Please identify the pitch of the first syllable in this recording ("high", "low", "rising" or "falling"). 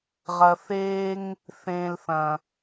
low